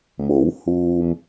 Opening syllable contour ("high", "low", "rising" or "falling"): rising